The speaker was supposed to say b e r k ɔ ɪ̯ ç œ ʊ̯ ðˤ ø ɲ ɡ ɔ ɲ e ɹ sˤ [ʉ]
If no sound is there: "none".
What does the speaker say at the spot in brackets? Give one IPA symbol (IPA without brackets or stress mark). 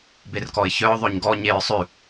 ʉ